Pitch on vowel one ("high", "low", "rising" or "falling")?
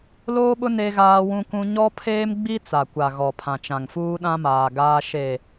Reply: high